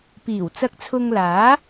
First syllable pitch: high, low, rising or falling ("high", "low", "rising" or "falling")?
low